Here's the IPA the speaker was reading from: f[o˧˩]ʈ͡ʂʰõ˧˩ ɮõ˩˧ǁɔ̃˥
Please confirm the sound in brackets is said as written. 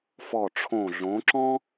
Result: no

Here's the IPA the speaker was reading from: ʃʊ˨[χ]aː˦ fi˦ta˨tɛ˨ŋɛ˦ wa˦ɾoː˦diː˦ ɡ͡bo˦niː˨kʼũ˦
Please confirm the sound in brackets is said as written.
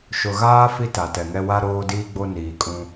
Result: no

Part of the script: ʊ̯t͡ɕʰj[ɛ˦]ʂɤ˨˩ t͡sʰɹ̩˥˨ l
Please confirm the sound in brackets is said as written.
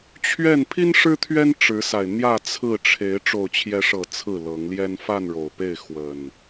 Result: no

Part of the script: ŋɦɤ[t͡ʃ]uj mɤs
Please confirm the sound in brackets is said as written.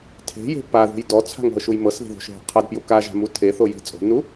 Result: no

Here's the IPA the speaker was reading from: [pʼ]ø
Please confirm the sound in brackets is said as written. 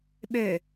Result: no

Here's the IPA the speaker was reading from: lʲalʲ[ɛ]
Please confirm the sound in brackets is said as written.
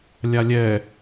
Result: yes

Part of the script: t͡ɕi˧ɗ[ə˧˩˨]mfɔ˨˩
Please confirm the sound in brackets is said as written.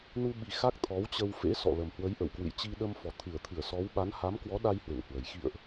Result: no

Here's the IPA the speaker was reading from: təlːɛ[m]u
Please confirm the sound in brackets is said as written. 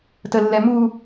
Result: yes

